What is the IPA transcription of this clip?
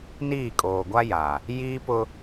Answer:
niː˦˨kʼoː˨ ɡʷa˦ja˨ | jiː˦pʊ˦

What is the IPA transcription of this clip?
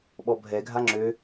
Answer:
ɓɔbʱɛ ɡʱaŋ͡ǁø

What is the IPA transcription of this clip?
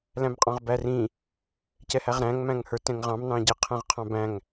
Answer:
læ̃mqʼɑ̃ʁbærĩ | cɛhæʁɾæ̃ŋ mæ̃ŋhə˞tɛ̃ŋʁɑ̃m nɑ̃ɟɪ qʰæ̃ʁqʰɑ̃bæ̃ŋ

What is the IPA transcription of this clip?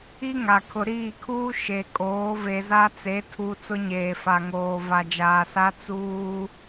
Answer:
i˦ŋa˨kʰʊ˨ ɾiː˦˨kʰuː˦ ʃe˨ kʼoː˨˦ve˨za˦t͡se˨˦ tʰu˦ t͡sʊ˦ɲeː˨fa˨ŋoː˨ va˨d͡ʒaː˨sa˦ t͡suː˦

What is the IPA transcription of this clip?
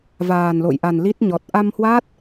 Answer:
vaː˨˩nlo̰˧˨jʔa˨˩nli˦˥t̚ ɲɔ˨˩t̚ ʔa˧mhwa˦˥t̚

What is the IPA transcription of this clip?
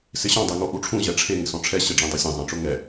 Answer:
sɪɕɔ̃dˤe ŋoʔuʈ͡ʂʰũʑɛ ʈ͡ʂʰe ŋɪsɔ̃ʈ͡ʂʰɛ ɕɪɖ͡ʐĩ dˤosʲẽzˤẽʈ͡ʂʊ ŋɛ

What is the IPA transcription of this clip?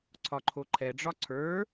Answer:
ǀʰɒǃʰoǃʰɛɖ͡ʐɒ ǀʰə˞

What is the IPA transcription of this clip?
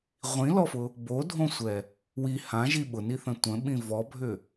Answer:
ʁʷĩlɔfʊ | bodʱõsʷɛ | wi hãʒi ɓʊniθə̃ tʷə̃ɓĩ vɔbʱʏ

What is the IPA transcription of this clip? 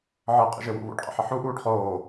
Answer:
ʕɤqʼə̰ʒɘwṵ βṵɖqʼə̰ħə ħuʔuːɖ χoː

